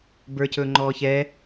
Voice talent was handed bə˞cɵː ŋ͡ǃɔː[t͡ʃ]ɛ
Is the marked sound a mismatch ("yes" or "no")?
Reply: yes